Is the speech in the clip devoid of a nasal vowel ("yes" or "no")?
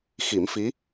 yes